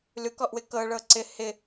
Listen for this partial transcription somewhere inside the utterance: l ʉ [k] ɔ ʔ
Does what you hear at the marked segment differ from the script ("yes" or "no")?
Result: no